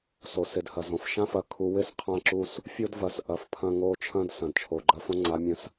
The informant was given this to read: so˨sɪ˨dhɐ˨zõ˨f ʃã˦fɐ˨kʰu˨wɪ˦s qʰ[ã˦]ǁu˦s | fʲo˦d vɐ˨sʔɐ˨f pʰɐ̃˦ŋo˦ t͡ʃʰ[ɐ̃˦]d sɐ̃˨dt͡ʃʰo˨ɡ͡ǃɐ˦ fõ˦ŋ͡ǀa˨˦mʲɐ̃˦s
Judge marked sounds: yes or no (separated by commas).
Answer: yes, yes